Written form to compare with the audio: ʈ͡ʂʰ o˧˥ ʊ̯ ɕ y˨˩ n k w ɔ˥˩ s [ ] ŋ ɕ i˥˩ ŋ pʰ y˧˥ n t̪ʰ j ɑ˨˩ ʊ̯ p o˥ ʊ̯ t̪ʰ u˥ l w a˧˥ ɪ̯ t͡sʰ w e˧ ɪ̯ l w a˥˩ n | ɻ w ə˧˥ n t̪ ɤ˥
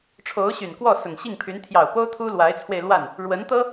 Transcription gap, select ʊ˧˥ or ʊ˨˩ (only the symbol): ʊ˨˩